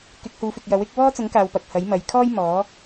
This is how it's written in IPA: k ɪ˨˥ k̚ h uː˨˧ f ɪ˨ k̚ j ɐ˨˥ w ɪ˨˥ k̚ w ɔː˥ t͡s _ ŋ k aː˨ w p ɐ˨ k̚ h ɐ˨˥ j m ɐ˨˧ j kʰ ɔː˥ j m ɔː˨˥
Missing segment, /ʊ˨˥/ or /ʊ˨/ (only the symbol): ʊ˨˥